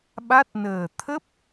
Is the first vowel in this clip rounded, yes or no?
no